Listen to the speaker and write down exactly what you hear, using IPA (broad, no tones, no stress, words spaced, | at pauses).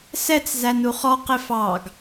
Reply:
sɛt͡szæn uχɔ qɪfɑɡ